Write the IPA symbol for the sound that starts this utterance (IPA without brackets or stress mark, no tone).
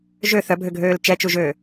ʒ